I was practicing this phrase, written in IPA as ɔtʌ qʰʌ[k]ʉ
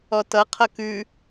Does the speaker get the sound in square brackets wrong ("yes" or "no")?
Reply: no